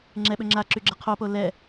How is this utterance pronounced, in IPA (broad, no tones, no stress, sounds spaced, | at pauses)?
ŋ͡ǁ ɛ ɓ ø ŋ͡ǁ a ǁ y ɡ͡ǁ ə qʰ o p o l ɛ